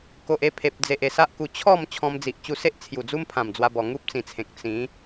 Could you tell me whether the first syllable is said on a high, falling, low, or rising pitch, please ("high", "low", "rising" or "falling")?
low